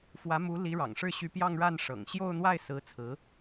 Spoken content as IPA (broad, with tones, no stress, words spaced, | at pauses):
fwä˧˥mu˧˥ li˧˥ ɻɑ̰˨˩ŋʂɻ̩˥˩ɕy˧˥pjɑ˥˧ŋ ɻa˥˩nʂɤ̰˨˩ŋ ɕjo˥˧ʊ̯n̪wa˥˩ɪ̯ sɹ̩˧˥ t͡sʰɹ̩˧˥